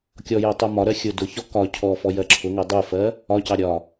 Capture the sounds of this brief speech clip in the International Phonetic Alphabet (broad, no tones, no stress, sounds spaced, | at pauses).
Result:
kʲ ɔ j ɜ tˤ u m ɒ ɾ ɜ xʲ ʊ d ʊ ç ɔ k ɒ cʰ ɔ f ɔ j ɜ ǁʰ ʊ ŋ ɜ dˤ u f ɜ | ɒ c ɑ ɾʲ ɒ